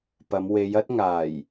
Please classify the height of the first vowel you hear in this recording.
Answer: low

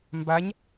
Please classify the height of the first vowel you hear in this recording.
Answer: low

